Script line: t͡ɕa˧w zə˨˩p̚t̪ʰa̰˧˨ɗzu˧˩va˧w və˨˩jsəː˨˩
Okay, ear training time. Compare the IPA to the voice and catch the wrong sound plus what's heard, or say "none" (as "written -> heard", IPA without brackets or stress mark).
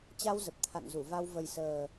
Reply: ɗ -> n